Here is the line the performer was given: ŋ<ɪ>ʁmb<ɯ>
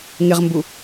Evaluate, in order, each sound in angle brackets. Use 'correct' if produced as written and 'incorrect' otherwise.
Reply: correct, incorrect: u

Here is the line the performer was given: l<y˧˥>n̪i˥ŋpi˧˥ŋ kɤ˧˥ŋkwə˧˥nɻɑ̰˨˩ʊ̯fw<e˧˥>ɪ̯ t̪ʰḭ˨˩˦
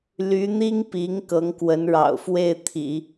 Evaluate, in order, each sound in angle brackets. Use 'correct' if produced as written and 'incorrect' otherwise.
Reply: correct, incorrect: e˥˩

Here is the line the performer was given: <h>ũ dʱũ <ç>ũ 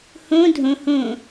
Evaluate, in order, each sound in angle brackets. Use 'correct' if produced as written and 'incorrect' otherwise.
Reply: correct, incorrect: h

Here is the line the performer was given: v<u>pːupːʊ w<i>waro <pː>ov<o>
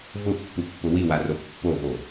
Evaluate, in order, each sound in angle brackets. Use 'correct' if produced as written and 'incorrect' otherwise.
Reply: incorrect: ʊ, correct, correct, correct

